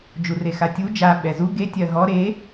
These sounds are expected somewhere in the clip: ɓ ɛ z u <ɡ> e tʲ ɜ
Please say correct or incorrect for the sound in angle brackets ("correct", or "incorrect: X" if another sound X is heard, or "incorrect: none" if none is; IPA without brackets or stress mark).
correct